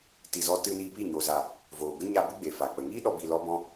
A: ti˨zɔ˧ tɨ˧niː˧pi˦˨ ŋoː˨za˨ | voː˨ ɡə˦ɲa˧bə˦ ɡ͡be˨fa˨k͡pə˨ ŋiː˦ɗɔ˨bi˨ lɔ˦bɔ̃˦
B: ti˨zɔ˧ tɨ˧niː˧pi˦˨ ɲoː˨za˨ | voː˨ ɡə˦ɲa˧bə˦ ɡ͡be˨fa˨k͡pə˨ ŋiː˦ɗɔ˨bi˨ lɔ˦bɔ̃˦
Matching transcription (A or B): B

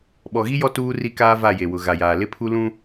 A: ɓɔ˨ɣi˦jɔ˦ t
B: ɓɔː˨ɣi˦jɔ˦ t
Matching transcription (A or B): A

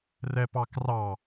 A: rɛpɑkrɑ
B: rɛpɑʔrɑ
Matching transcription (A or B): A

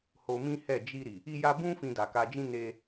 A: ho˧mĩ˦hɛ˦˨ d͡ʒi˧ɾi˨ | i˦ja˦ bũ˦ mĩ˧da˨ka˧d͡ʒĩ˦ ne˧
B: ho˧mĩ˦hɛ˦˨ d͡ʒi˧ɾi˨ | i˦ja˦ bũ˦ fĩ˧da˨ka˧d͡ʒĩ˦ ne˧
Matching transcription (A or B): B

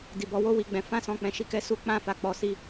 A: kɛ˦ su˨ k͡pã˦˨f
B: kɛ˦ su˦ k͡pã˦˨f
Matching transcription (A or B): B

